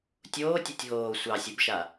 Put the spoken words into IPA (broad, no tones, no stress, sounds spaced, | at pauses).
tʲ oː tʲ a tʲ ɦ oː sʷ ɑ sʲ u b ʃ a